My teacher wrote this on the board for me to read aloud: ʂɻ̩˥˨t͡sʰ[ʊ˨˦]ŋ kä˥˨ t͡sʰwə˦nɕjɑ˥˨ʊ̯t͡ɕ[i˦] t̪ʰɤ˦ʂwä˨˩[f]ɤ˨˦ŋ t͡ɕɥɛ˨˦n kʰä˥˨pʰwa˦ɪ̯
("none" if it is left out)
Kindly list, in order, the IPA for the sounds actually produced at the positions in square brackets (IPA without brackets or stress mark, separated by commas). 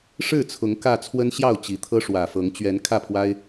ʊ˨˦, i˨˩, f